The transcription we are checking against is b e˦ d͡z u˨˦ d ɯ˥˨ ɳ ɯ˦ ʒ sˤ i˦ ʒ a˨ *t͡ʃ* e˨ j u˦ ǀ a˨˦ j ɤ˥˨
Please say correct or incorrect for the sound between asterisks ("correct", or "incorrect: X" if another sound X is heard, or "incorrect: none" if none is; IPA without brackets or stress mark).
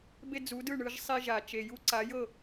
correct